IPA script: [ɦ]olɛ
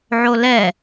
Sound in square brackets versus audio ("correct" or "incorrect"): incorrect